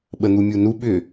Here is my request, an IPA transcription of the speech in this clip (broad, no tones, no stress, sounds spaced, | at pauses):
ɓ ə n̪ u mʲ u n u ɓ ʏ